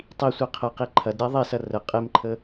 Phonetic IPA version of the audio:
tˤi sʷiqʰəqi ǃʰɐdɾʲa ðˤesɐ rə qʼemǃʰə

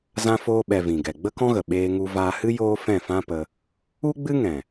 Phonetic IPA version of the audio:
zã˧foː˧ɓɛ˨ vĩ˨ɡɛ˨ ɡ͡bə˦kɔ̃˦ɣə˨ ɓeː˧ŋu˧ vaː˧hɨ˦ joː˦fɛ̃˦˨fã˦pə˧ | u˦ɡ͡bɨ˦ŋɛ̃˨

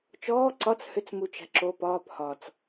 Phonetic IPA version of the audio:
t͡ʃɔː ǀɒt͡s hʏt͡s mut͡ʃæ̤ǁo pɒːp hɒt͡s

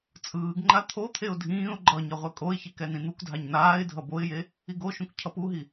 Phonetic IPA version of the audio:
t͡sʼɯːɡŋ͡ǃa t̪ʰot̪ʰeʊ̯ dʱĩːʊ̯ ɡ͡ǃʌ ɲʌʁʷɛkʼoɪ̯çik ɛnĩn̪ukdʱaɲ naːɪ̯dʱʌ boɪ̯je | iɡoʃũk cʰʌpuɦi

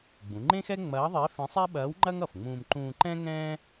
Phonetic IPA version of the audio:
ɡ͡bũ˩˧ŋ͡ǃẽ˥xɛ˥ ŋ͡mɐː˧˥ðˤe˧˥ fẽ˧˥sˤɛ˥ɓɐː˧˥wŋ͡ǃɐ˥ŋ ʌ˩fŋ͡mũː˧m ǃũː˧ǃɛ̃˥ ŋɛ̃ː˥

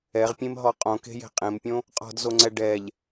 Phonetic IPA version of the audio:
ɛʁpʲẽmɦɔ qʼõke̤je̤ qʼẽmpʲõ | qʼɔ̤dzoŋ͡ǀɛ ɖɛʎ

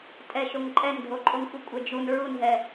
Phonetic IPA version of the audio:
tʼɛʃoŋ ǃʼɛndʱoǃʼoŋxʷɨ kʷʼɛd͡ʒun ɹunɦɛ

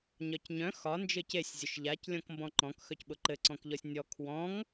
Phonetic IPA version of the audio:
ɲɒcɲœ̃ xɒ nd͡ʒɘcesʲ zʲʊʃʎac lʲɔ̃kmbɔ̃ǃɔ̃k xœcɓʊǃɘ ǀɔ̃kʎɔsʲnʲɔ kʰwɔ̃ŋ

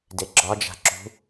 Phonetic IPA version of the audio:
deɡ͡ǁɒd͡ʒa̤ ǁṳ

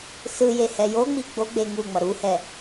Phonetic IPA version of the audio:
sɯje hɛjoŋ͡mi ɡ͡boɡ͡be ŋu ŋ͡mʌɾuhɛ

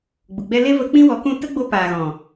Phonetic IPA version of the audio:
ɡ͡bu˨ ɡ͡bɛ˧le˦və˧ k͡pĩ˦wɔ˨˦kũ˦˨ tə˦ɡ͡bo˧ paː˨ɣɔ̃˨

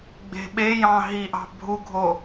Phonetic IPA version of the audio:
ɡ͡be̤ɓejɑ̃ ɦiʔɑ̤ bʱuɡʱo

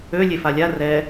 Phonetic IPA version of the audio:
ø lʲefalʲa rɛ

